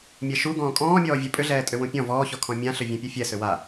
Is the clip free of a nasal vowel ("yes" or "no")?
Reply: no